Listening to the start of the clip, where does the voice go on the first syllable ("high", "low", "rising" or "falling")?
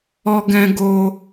high